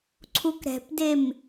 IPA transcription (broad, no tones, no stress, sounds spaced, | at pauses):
ǀʰ u k ɾ ɛ̤ p d e m